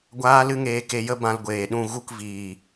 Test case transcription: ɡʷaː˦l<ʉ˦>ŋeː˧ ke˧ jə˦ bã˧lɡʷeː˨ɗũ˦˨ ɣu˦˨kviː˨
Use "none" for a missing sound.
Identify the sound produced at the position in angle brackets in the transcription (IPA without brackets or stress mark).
ɨ˦